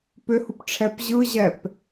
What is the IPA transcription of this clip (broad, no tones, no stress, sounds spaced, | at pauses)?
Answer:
p ʏ h u p ʈ͡ʂʰ ɛ p ʑ ɯ ʑ ɛ p